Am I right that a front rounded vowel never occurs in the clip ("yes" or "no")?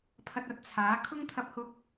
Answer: yes